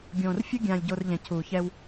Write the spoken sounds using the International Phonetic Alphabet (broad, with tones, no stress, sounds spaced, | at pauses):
ɡʲ õː˨ r fʲ ɯ˦ ɡʲ ãː˨ lʲ ɟ o˨ r ʎ ɛ̃˨ cʰ uː˨ ç ɛ˦ w